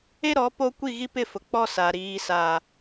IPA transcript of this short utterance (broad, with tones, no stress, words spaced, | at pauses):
e˦ ɾɔ˨˦po˦ kʷi˦˨ɣi˦pɪ˦˨ fʊ˨ k͡pɔ˦sa˨ ɾiː˨sa˨